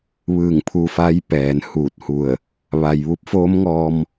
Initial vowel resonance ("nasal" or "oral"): oral